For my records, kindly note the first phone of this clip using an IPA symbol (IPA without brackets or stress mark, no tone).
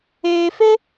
eː